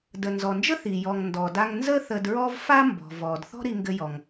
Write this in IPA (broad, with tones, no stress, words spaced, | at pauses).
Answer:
də˩nzɔ˩nd͡ʒə˥ θi˩ jɔ˩ŋ ndɔ˩da˧ŋ nzə˥ θə˧dɹɔ˥v fa˥mbɔ̤˩ vɔ˩d θɔ̤˥ɾi˧ŋɡɘ˧jɔ˩ŋ